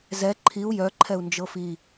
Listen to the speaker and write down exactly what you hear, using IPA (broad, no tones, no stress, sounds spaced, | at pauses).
z ɛ ǃʰ i u̯ j œ ǃʰ ɛ u̯ n d͡ʒ ɤ f i